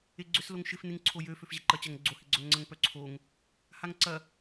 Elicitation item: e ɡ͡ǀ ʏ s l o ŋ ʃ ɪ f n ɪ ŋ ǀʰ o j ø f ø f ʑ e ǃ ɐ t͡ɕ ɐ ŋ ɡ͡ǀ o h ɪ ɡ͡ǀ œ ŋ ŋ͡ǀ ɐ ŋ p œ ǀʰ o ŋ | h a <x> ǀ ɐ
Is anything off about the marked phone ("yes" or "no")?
yes